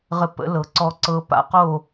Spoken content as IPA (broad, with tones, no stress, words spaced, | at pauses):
ʁə˥˨pə̰˧˥lɤ˩˥ ǀɔ˧˥ǀɤ˧˥pa̰˩˥qo˥˨